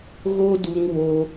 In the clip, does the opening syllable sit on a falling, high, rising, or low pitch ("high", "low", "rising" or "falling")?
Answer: high